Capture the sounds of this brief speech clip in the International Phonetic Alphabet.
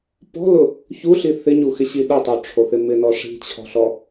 p ɔ̤ l ʊ | ç u ɬ i θ ɪ ɲ u x ɪ ɕ i ɗ ʊ tˤ u ʈ͡ʂʰ o θ ɪ m ɪ n ɔ ʂ i̤ t͡ɕʰ ɔ̤ ɬ ɔ

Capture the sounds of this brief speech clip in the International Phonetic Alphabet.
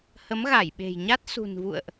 h ə˨˦ m ɣ a˧˩ j ɓ e̤˨˩ j ɲ a˦˥ t̚ s ṳ˨˩ n v ṵ˧˨ ə̯ ʔ

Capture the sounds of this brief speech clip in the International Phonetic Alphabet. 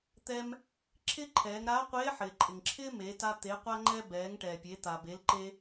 t̪ ɛ˧ m | ǁʰ ɪ˥ ǃʰ ɛː˩˧ ŋ ɾ aː˧˥ qʷ eː˧˥ ħ ɪː˩ ǃʼ ɪ˩ ŋ ǁʰ ɪː˥ m e˩˧ t a˧ t̪ e˩˧ qʷ a˧ ŋ͡ǃ ɛ˧ b ɛː˩˧ ŋ ʈ ɛː˩ pʲ e˩˧ t̪ a˩ b e˩˧ l ǃ e˧

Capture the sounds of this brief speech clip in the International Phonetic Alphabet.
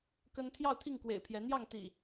k ə˦ n t̪ʰ j ɑ˥˨ ʊ̯ t̪ʰ i˥˨ ŋ k w ḛ˨˩ ɪ̯ pʰ j ɛ˨˦ n̪ j ɑ˥˨ ŋ t̪ ḭ˨˩

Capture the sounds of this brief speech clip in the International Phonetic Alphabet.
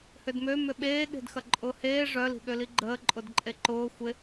h ʏ d m ø m ʏ ɓ eː ɠ e̤ d x ɐ ǃʼ ʊː h eː ʐ œ l i̤ ɠ ø l i ɡ͡ǃ əː ǃʼ ʊ d ǃʼ e ǃ ʊː xʷ ɪ

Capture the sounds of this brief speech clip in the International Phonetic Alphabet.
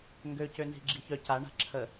ŋ ɡ ø c ø n z i̤ ɡ͡ǁ i ç œ c a ɳ a̤ ǁʰ ə

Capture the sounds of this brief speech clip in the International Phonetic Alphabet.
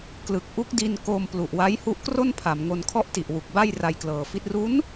k l ɯ˨˩ k̚ ʔ u˦˥ k̚ d i˧ n k oː˧ m p l u˨˩ ʔ w a˦˥ j h u˦˥ ʔ k r o˥˩ n pʰ a˩˦ m ŋ o˧ n kʰ ɔ˥˩ ʔ t i˨˩ ʔ w u˨˩ k̚ b a˥˩ j r a˧ j k l ɤː˨˩ f i˦˥ t̚ r u˦˥ n

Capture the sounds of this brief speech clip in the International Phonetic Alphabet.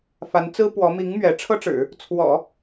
f a˧˥ n t͡s ɹ̩˥ p w ɔ˧˥ m i˧˥ ŋ m ɥ ɛ˧˥ ʈ͡ʂʰ ɤ˥ ʈ͡ʂ ɻ̩˨˩˦ | t͡sʰ w ɔ̰˨˩˦

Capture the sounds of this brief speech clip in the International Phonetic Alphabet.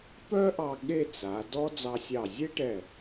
p œ˥ ʔ ɑ˧ ɠ e˥˧ t͡s a˩˧ d ɔ˥ d͡z ɑ˧ sʲ ɑ˧˩ zʲ e˥ ʈ ɛ˧˩

